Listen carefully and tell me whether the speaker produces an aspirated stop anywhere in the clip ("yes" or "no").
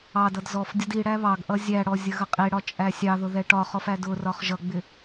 no